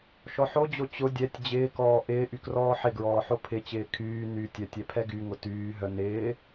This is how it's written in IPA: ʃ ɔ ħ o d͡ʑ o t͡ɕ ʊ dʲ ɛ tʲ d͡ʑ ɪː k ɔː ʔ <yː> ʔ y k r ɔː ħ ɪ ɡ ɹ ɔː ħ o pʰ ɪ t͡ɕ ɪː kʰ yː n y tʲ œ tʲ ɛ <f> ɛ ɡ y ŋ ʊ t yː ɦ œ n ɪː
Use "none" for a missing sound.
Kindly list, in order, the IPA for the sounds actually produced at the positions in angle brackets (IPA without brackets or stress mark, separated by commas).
ɪː, pʰ